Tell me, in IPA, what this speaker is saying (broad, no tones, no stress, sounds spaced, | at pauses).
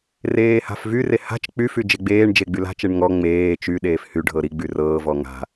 r eː h a̤ f v y r e h a̤ t͡ʃ k͡p y f y d͡ʒ e ɡ͡b eː ɳ d͡ʒ e ɡ͡b y l a̤ t͡ʃ e ɳ ŋ ɔ ŋ͡m eː t͡ʃ y ɗ eː f h y ɖʱ ɤ ɾ i ɡ͡b y r ɤː v ɔ ŋ a̤